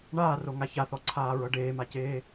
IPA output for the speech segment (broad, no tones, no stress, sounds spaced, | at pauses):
ɳ aː r o ŋ a ç a θ ɔ ǀʰ aː ɹ ɤ ɖ eː m a c eː